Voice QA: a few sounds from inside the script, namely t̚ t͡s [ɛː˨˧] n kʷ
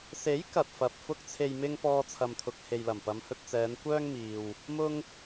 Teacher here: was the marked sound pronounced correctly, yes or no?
yes